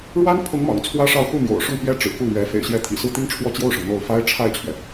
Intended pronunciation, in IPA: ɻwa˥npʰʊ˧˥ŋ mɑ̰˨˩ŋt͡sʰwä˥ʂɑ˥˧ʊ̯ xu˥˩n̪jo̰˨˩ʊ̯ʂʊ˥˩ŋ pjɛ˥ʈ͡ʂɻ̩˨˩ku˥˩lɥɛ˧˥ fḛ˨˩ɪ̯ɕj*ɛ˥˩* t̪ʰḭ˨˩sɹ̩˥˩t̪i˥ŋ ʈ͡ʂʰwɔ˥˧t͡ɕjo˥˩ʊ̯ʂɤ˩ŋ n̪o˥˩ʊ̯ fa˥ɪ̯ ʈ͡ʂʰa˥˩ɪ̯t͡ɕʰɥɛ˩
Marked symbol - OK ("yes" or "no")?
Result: no